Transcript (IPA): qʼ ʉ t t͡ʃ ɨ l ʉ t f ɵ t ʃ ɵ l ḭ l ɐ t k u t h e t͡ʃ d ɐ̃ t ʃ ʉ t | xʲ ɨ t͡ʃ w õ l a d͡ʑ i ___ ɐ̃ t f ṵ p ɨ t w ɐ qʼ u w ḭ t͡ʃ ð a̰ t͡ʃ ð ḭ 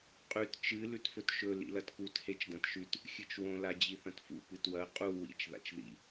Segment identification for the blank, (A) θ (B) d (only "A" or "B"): A